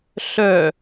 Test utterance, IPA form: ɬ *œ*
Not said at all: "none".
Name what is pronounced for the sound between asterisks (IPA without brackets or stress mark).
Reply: œ